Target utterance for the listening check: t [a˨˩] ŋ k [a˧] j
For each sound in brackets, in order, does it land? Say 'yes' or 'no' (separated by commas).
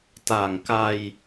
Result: yes, yes